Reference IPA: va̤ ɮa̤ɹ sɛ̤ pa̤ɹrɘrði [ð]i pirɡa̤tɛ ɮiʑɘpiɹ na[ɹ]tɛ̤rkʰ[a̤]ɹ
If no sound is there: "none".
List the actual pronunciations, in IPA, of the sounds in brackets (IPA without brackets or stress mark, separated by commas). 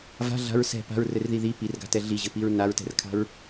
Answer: ð, ɹ, a̤